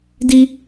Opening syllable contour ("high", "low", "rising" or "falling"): high